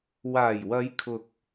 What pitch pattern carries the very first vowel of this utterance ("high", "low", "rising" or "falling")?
low